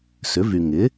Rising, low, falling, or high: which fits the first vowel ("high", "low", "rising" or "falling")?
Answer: rising